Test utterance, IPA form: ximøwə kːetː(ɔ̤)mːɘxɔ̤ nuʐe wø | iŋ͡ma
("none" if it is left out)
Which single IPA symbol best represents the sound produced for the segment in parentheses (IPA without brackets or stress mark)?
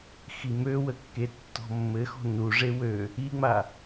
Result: ɔ̤